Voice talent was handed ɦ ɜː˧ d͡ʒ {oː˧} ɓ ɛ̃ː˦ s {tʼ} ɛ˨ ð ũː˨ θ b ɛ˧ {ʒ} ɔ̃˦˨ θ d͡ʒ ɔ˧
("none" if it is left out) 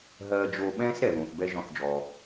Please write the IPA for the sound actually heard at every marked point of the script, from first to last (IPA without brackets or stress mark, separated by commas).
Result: oː˧, ɾ, ʒ